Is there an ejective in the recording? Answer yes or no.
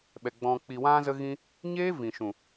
no